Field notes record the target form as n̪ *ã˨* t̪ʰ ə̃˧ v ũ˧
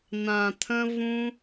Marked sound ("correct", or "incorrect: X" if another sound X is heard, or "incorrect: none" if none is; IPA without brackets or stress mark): correct